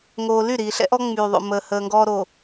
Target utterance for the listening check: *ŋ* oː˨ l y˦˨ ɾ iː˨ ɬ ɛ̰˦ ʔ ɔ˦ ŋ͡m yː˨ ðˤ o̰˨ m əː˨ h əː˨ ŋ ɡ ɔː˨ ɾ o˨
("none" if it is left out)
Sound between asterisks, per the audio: ŋ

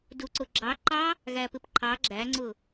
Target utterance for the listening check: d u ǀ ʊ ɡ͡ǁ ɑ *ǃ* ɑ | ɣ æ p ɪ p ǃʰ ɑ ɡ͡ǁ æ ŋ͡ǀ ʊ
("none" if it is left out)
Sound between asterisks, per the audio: ǃ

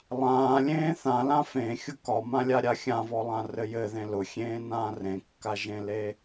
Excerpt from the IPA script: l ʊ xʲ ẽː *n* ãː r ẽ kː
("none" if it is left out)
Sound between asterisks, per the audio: n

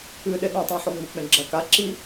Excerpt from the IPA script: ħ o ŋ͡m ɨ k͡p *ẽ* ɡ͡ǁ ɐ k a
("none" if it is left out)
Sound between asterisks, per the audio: ẽ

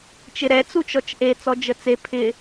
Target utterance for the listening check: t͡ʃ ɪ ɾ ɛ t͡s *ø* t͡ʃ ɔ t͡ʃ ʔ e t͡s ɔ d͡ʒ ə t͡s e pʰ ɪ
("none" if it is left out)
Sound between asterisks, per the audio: u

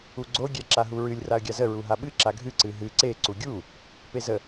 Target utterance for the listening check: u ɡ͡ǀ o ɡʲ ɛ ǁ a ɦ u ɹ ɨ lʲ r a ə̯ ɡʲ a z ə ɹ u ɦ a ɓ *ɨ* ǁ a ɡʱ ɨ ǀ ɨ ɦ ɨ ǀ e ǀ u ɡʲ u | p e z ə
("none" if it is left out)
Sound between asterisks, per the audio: ɨ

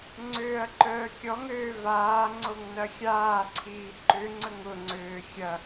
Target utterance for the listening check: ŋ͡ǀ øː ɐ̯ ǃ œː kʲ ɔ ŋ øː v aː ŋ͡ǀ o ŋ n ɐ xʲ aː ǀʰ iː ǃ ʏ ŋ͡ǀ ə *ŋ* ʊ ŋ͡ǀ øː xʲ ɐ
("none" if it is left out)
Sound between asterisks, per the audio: ŋ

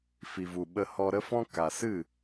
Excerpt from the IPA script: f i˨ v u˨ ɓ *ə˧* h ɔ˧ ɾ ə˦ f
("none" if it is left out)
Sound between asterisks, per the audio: ə˧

